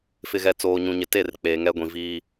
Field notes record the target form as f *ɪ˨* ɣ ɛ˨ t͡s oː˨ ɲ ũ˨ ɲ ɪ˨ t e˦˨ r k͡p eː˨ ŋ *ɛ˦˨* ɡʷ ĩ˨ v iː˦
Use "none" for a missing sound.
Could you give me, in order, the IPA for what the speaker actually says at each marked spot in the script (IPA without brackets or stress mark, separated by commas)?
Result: ɪ˨, ɛ˦